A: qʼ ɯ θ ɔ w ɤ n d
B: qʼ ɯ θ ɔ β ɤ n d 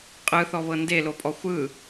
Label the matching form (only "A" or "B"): B